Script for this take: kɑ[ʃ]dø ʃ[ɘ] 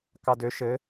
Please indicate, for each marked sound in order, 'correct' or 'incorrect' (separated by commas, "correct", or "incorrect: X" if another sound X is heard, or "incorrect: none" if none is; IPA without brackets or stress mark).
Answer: incorrect: none, correct